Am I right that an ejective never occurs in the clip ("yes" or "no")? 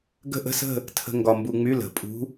no